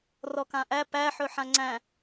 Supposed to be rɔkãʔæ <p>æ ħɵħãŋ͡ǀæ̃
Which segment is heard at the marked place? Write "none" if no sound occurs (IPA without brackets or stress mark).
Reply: p